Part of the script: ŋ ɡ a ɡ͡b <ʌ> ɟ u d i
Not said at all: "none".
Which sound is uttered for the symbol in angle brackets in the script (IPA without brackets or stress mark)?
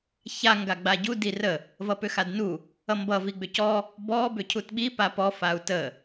a